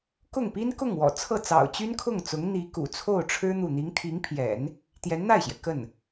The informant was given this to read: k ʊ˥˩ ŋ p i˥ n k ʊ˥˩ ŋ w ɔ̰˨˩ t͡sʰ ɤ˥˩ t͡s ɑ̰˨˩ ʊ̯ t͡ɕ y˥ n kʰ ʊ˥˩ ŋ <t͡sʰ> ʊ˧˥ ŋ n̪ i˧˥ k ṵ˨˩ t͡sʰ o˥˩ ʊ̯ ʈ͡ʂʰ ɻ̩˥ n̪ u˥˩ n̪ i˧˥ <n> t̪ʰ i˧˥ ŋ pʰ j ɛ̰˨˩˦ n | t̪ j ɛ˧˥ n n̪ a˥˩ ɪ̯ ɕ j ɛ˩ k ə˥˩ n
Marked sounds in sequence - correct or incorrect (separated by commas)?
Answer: incorrect, incorrect